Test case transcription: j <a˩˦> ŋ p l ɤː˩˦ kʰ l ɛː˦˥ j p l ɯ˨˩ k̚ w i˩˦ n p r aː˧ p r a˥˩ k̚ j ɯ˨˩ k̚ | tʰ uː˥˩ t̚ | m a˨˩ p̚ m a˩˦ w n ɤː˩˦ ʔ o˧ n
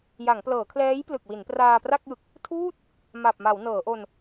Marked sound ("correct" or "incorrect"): correct